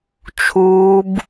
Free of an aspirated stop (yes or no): no